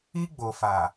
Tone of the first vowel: high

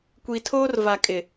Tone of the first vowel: low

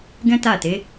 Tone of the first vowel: high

